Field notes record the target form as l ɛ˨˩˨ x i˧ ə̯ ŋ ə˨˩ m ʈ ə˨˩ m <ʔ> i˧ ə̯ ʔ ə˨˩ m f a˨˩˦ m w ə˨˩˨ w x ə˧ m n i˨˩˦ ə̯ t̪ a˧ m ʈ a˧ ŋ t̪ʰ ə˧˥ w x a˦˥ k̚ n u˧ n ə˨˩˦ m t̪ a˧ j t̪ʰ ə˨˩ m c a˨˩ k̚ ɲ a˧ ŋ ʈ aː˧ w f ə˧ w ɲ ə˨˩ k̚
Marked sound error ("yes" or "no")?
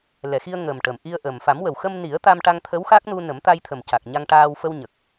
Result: no